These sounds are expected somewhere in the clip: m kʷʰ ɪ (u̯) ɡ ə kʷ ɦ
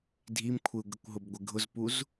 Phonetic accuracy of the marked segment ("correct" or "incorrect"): correct